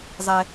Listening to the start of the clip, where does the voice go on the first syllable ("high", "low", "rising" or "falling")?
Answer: low